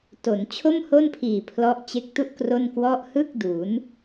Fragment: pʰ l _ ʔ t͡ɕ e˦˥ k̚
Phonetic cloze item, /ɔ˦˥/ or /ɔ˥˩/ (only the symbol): ɔ˦˥